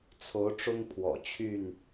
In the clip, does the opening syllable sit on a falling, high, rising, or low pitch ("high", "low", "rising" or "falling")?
rising